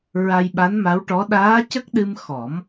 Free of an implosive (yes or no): no